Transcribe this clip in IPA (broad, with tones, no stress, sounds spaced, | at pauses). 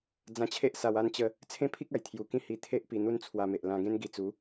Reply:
d͡z ã˧ t͡ɕʰ e˦ ʔ s a˧ w a˥˧ n t͡ɕ ə˧ | t͡sʰ ẽ˦ pʰ i˦ k̚ a˨˩ j t̪ʰ j u˧ k ĩ˥˧ h i˧ t̪ʰ e˦ ʔ p i˧ n̪ u˦ n t͡sʰ w a˧ m e˨ ʔ l ã˧ ɡ ẽ˦ n ɡ i˧ t͡s u˨˦